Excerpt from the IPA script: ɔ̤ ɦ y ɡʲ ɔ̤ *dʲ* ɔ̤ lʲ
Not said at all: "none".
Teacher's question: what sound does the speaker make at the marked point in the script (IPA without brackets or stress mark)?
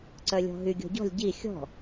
ɟ